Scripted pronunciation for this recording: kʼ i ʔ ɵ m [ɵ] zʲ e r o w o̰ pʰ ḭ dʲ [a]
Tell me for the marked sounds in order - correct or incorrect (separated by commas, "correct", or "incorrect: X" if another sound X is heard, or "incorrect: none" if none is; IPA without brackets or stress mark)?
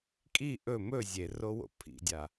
correct, correct